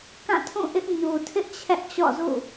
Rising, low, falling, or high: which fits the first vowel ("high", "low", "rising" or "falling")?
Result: falling